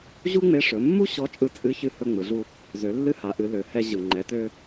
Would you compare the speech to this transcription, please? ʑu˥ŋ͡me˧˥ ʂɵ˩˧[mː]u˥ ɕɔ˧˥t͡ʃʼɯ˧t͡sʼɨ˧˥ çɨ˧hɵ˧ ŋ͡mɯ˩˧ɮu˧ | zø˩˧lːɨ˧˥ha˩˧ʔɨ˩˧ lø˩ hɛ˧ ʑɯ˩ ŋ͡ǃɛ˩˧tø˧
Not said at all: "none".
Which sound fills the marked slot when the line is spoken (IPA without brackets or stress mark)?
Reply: mː